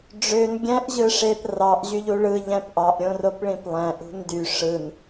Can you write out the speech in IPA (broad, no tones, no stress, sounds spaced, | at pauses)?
ɖ͡ʐ ø n ɡʲ æ̃ ʔ ʑ ɯ ʂ e p r ɑ ʔ ʑ y ʎ u ɭ ɯ ʎ æ̃ p ʔ ɑ ʔ ɾʲ õ r o p ɭ ĩ p lˠ æ̃ ʔ ṳ n d y ʂ ɯ n